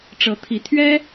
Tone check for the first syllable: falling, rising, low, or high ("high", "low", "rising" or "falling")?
rising